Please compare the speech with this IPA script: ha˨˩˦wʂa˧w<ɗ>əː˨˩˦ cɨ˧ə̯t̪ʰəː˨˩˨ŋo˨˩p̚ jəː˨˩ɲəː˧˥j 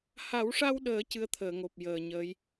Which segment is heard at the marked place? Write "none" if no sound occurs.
ɗ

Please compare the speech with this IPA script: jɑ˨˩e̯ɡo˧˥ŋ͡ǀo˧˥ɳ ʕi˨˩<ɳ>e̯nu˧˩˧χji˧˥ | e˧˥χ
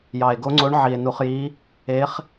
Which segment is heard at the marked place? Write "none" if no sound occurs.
none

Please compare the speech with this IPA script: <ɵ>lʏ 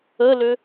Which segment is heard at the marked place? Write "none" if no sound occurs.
ə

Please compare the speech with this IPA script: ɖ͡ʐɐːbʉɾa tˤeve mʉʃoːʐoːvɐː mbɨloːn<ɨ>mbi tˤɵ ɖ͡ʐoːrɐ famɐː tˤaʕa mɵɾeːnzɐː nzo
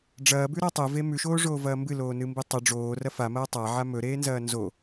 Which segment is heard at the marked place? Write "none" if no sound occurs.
ɨ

